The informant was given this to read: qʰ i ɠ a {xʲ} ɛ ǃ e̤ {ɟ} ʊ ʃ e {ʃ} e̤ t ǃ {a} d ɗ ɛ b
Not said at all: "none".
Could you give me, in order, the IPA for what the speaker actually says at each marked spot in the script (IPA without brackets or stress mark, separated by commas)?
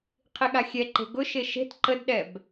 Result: xʲ, ɡ, ʃ, ə